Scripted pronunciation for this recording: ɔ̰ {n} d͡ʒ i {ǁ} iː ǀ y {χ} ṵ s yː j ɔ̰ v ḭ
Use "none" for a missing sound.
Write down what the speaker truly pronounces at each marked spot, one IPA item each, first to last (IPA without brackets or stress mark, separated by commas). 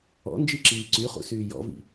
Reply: n, ǁ, χ